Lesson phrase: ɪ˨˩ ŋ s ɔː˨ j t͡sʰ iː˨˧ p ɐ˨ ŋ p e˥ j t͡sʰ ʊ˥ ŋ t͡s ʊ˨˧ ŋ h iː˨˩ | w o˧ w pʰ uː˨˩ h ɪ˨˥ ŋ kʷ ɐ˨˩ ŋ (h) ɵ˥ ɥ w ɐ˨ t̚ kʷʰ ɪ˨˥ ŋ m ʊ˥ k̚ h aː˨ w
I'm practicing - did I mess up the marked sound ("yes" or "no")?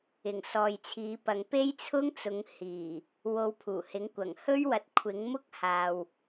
no